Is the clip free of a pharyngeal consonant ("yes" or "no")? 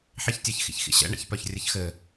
no